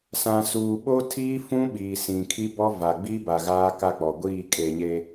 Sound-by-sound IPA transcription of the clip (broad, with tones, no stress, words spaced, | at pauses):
sã˨suː˨ɓo˦tʰiː˦ fũ˦ɓiː˨sĩ˨ kʰi˦bɔ˦va˨ ɡ͡bi˦ba˨ ɣaː˦ka˦˨k͡pɔ˨ɡʷiː˦˨ kʼe˨ɲe˨